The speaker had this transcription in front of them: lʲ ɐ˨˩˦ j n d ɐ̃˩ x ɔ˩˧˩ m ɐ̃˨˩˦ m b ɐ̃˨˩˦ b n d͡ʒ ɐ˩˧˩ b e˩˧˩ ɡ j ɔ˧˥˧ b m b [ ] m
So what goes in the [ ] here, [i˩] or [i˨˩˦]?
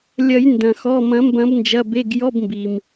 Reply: i˩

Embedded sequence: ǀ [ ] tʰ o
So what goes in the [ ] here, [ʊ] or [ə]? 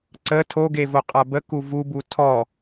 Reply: ə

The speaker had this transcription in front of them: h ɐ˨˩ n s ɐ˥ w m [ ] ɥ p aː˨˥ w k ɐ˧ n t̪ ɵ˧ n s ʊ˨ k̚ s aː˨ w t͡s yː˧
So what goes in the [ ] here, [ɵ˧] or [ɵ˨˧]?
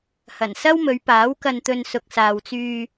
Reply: ɵ˨˧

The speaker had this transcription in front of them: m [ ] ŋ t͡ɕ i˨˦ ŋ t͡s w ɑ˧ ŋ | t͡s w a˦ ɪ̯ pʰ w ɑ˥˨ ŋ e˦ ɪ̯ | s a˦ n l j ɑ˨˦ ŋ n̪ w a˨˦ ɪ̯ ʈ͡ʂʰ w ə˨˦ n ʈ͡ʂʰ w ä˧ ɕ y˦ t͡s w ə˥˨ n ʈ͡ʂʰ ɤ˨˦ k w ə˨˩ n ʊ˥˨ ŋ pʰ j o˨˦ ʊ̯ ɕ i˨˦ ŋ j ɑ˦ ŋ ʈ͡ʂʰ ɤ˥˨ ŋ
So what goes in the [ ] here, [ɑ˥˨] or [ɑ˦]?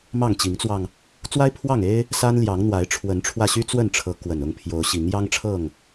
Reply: ɑ˥˨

